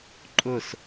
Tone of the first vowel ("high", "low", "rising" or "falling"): falling